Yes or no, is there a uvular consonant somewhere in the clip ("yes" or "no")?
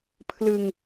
no